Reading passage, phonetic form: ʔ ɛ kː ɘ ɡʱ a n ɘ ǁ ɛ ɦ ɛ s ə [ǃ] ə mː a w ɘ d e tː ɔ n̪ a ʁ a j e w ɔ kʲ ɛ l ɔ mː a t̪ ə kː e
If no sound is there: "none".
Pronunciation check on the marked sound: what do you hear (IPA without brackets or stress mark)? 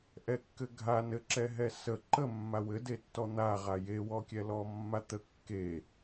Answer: ǃ